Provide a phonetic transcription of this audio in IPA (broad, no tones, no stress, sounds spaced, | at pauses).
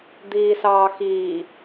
d̪ iː s ɑː x iː